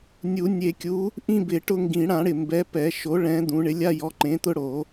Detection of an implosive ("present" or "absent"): absent